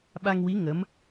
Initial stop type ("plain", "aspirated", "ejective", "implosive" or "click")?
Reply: implosive